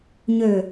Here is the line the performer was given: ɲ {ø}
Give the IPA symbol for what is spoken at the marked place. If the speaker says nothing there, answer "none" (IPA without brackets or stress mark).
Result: ø